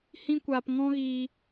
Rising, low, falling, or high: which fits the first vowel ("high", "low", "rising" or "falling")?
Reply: high